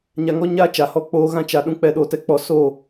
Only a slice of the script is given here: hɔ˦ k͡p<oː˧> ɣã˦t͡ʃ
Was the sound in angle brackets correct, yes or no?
no